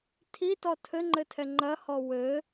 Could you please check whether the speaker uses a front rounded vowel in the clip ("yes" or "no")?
no